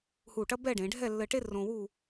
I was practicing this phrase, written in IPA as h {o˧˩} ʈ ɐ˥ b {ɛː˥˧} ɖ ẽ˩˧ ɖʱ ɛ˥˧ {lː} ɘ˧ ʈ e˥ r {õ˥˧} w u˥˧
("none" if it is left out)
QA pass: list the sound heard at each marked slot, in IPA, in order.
u˧˩, ɛ˥˧, lː, õ˧

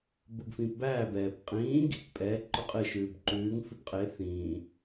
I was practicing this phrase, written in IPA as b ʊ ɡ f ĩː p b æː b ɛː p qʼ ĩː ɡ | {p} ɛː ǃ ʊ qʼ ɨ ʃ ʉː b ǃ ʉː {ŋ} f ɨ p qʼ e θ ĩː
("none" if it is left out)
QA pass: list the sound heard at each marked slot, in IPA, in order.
pʼ, ŋ

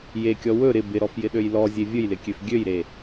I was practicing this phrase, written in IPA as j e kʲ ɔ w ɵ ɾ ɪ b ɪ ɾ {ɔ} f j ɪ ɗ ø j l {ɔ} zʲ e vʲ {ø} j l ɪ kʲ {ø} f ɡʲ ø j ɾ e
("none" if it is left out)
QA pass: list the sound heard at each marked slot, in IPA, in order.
ɔ, ɔ, ɵ, ø

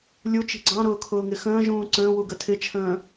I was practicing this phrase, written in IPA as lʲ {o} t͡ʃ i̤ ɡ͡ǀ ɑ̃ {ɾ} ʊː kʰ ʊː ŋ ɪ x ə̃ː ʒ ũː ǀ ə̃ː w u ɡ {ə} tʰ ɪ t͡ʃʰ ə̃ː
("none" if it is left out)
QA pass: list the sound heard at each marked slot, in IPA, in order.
u, ɾ, ə

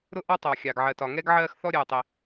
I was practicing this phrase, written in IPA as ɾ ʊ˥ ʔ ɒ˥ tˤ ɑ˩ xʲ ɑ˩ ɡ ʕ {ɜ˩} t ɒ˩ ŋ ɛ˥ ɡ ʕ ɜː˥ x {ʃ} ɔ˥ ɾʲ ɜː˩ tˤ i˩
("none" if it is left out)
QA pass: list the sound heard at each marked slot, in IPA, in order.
ɜ˩, θ

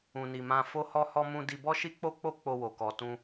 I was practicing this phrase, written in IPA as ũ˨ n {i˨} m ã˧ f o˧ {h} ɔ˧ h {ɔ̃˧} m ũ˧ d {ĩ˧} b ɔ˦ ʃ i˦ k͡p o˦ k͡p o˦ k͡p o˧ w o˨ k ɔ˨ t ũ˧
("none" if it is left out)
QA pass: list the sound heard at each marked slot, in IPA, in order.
i˨, h, ɔ˧, i˧

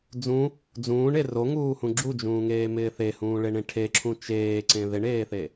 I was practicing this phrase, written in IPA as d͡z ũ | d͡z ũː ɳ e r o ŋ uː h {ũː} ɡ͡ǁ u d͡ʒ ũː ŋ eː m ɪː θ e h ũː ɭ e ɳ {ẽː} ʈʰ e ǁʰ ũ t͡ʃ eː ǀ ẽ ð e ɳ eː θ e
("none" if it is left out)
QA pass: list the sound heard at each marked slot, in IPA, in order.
ũ, ẽ

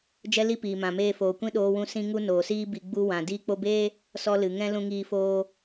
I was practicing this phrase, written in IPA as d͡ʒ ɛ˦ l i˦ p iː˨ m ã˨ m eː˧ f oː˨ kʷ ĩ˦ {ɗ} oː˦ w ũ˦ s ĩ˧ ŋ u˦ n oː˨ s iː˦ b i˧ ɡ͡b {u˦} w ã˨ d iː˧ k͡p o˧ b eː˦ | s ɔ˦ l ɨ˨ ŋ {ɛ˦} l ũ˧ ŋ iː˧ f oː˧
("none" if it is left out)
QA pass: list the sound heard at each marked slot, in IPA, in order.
ɗ, u˦, ɛ̃˦

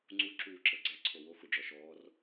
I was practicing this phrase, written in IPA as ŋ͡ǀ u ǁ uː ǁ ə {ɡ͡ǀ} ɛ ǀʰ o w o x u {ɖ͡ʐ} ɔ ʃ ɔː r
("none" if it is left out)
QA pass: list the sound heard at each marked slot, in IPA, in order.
ɡ͡ǀ, ɖ͡ʐ

